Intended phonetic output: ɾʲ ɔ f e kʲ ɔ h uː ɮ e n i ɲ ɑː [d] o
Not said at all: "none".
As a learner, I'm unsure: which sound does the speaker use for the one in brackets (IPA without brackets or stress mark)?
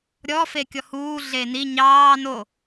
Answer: n